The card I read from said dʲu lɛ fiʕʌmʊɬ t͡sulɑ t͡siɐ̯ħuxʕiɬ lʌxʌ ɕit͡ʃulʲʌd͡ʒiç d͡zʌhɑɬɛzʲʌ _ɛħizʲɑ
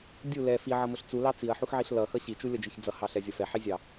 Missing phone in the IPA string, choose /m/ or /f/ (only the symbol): f